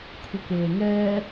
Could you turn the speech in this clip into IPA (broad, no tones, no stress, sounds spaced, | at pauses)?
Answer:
kʷʰ i k eː ŋ ɛː